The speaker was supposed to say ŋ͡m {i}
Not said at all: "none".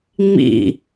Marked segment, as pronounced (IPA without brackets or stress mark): ḭ